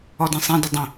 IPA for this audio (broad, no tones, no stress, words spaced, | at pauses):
ɔdĩsˤĩdʊ dˤə̃